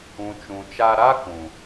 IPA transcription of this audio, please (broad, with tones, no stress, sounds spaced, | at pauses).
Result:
ũ˨ t͡ʃ ũ˨ t͡ʃ a˧ ɾ a˦ k ũ˨